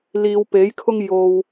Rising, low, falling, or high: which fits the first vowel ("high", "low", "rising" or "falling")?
low